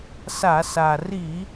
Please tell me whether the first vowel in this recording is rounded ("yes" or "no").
no